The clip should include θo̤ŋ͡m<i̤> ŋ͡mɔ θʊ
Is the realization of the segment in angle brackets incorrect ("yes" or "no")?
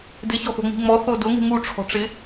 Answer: no